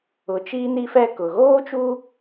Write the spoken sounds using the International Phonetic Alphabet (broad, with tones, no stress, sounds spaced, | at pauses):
ʊ˨ t͡ʃ iː˦ n i˦ f ɛ˦ k ʊ˨ ɣ oː˦ t͡ʃ u˦